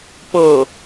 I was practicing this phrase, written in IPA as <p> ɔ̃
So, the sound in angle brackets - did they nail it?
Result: yes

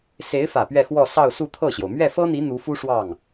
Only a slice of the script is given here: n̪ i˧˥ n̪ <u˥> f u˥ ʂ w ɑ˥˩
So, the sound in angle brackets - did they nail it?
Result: no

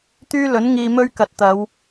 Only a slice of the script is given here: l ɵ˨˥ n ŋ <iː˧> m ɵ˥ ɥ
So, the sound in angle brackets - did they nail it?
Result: yes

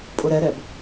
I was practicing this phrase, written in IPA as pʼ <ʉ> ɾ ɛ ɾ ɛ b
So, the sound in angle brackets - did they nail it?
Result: no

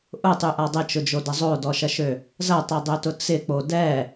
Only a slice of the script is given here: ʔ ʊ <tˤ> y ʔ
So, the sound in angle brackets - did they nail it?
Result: yes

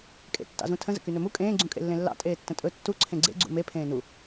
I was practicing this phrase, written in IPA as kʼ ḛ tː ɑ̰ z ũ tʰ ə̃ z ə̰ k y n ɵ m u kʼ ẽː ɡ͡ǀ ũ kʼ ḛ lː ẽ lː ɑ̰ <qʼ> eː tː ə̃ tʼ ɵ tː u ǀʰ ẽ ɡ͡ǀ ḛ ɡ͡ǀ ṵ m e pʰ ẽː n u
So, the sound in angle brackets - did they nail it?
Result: no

